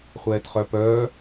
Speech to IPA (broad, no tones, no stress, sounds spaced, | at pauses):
χʷ ɛː t χ œ p œː